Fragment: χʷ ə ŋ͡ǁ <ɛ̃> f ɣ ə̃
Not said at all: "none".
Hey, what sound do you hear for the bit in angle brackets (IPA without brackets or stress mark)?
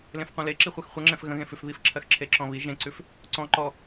ɛ̃